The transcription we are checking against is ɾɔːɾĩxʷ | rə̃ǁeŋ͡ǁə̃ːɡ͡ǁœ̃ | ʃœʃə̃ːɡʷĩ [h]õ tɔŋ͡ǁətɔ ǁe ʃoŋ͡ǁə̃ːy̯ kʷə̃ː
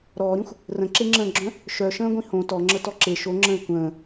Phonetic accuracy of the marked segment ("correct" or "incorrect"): correct